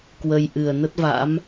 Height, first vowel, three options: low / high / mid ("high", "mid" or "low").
mid